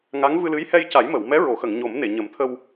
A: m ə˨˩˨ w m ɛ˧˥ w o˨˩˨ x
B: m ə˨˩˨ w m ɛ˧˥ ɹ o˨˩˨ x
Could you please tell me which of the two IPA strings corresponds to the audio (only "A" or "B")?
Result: B